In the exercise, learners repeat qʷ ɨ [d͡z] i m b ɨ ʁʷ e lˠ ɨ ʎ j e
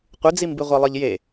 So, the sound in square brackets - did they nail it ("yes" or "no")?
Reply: yes